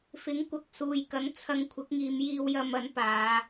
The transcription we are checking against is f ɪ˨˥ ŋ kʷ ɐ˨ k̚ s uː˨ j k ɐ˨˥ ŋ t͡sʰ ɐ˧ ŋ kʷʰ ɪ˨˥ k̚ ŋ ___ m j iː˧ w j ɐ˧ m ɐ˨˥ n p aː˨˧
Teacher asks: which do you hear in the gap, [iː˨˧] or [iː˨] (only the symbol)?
iː˨˧